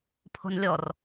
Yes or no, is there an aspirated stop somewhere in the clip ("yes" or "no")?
yes